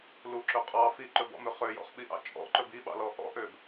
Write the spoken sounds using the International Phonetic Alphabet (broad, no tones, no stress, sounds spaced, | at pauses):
l u ǁ ɵ qʼ ɑ f i ǃ ɵ b ɔ̰ m ø χ ø j ɔ̰ χ ɓ i ʔ ɑ̰ t͡ʃʼ ɔ̰ ǃ ɵ b i ɓ ɑ̰ l ɔ ʔ ɔ̰ ʔ ø b